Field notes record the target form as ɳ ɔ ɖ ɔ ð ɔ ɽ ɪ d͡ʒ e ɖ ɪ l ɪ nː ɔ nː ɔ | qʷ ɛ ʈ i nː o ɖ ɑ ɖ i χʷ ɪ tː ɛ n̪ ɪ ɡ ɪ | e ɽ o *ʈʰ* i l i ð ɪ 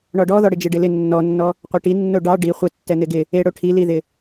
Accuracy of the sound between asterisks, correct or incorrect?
correct